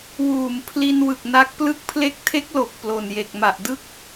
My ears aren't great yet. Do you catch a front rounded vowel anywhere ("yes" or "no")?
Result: no